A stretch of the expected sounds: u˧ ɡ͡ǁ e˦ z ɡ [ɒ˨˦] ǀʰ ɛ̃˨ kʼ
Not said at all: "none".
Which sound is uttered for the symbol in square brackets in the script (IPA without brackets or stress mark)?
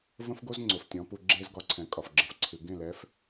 ɒ˨˦